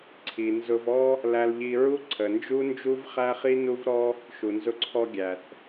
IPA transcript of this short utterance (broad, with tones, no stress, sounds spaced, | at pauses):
ǀʰ i˨ n z ʊ˧ v ɔ˦ | l æ˧ l ʎ i˧ ɹ u˦ ǀʰ ə˨ n d͡ʒ u˦ n d͡ʒ u˦ v χ æ˦ χ i˦ n u˦ v ɾ ɔ˦ | ʃ u˨ n z ʊ˧ ǀʰ ɔ˧ ɡʲ æ˨ θ